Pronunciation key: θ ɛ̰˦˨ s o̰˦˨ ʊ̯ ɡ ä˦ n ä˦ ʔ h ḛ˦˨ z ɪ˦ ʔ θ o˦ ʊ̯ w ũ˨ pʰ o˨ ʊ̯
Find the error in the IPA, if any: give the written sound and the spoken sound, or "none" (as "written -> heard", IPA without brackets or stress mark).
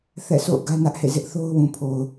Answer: none